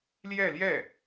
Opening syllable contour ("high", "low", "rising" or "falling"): falling